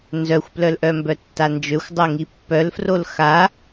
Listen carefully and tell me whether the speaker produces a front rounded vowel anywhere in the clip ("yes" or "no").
yes